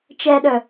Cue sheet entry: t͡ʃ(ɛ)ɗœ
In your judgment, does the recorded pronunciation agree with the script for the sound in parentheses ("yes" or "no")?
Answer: yes